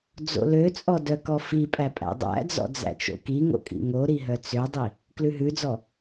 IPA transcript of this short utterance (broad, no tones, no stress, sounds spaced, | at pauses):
d͡z o̰ l ø t͡sʼ ɔ d œ k ɔ f i pʼ æ pʼ æ̰ dˤ æ̰ d͡z ɔ̰ d͡z æ̰ t͡ʃ o̰ k i ŋ o̰ kʼ ḭ ŋ o ɾ i ɦ œ t͡s ø dˤ i | k l ʉ ɦ ʉ d͡z ɔ